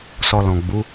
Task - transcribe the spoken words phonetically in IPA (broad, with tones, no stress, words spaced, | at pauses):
sɔ˧lɔ̃˨ɡ͡bu˨˦